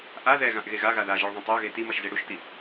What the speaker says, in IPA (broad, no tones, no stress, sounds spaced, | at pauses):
ʔ a ð ɛ ɣ ã ʔ ɣ e ɣ a ɣ a ð a ʒ ɛ ɭ ðˤ ɛ̃ tˤ ɛ ɐ̯ ɣ e t i m ʌ ʃ z e ɽ u ʃ t i